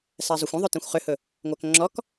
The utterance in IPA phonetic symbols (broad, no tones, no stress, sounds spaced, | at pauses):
s æ zˤ o xʷ ə̃ ðˤ ɵ t ĩ xʷ χ ʏ h ɵ | ŋʷ æ k ŋ͡ǁ ɔ k